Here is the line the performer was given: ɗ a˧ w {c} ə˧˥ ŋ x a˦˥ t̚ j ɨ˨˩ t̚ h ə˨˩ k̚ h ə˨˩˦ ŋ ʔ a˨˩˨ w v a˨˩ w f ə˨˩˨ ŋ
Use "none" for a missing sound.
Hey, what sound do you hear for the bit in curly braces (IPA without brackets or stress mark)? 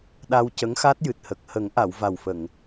c